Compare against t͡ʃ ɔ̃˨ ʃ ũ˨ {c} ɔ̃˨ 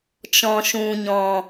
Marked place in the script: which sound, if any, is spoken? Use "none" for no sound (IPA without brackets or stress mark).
ɲ